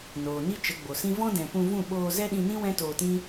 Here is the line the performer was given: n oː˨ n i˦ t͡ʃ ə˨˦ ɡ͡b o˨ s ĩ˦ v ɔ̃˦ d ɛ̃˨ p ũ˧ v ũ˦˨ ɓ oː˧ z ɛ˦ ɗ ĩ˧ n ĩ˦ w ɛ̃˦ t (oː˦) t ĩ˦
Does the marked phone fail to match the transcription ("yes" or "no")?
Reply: yes